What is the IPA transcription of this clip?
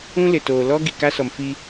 ũ˦ l ɪ˨ t oː˨ l ɔ˦ ɡ i˨ k a˦ s ɔ˨ m f i˦

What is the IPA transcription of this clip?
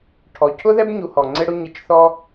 ʈʰ ɔ˩ cʰ ʊ˥ ð ɛ˥ b ɲ u˧ h ɔ˩ ŋ͡ǀ ɪ˥ ɽ ʊ˥ ɲ ɪ˧ t͡ʃ θ ɔ˥

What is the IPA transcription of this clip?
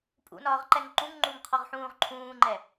pʼ ṵ n ɒː ʁ ǃ ɛ ŋ ǃ ũ ŋ ŋ͡ǃ u ŋ qʰ ɔ ʁ ħ ũː ʁ ǃʰ ũː ŋ͡ǃ ɛ

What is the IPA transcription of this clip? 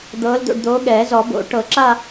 d̪ ɤː˨˥ l d̪ o̰˧ ɖ d̪ oː˨˥ ɠ ɛː˨˩˦ z ɔ˨˩˦ b o̰˨˩˦ ʈ ɤ˨˩˦ ǁ a˥˧

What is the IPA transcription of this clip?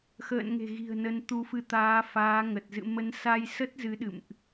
x ə̰ː˧˨ n ŋ e̤˨˩ ɣ i̤˨˩ ə̯ n ə˨˦ n t̪ u˨˦ f ɨ˨˦ t̪ aː˨˦ f aː˨˦ ŋ ə˨˩ t̚ z ɨ̰˧˨ m ə˨˦ n s a˧ j s ə˦˥ t̚ z ɨ˨˦ ɗ ɨ̰˧˨ m ʔ

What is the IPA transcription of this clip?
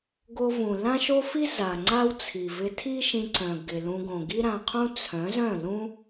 ɡ o˧ v ũ˨ l ã˦ ʃ o˦ f i˦ z a˨ ŋ͡ǀ a˦ w t͡sʰ i˨ v ɪ˧ tʰ i˦ ʃ ĩ˧ ǀ œ̃˨ ɡ ɪ˨ l ũ˧ ɡ õ˨ ɡ i˦ ɾ ã˧ qʰ ũ˦ t͡sʰ œ̃˨˦ z œ̃˦˨ l ũ˦

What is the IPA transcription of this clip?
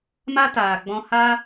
m a˦ t aː˨ ɡ͡b ɔ̃˧ h a˦

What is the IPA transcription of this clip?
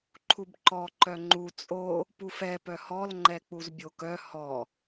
ǃʰ u b ǃ ɔ ǃ œ ŋ͡ǃ u t͡sʼ o | p u f ɛ p œ h ɔ l ŋ͡ǃ ɛ k͡p u z bʲ o k œ h ɔ

